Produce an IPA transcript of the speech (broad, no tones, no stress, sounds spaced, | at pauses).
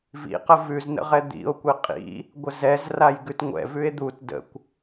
v ḭ q ə v ʉ z n ə̰ ʁ ɛ d̪ ḭ o̯ kʷ i qʼ ḭ | ɡʷ ə z ɛ z r a j ɡ ʉ t ŋʷ ɛ̰ v ʉ e̯ d̪ u t d ə̰ kʷ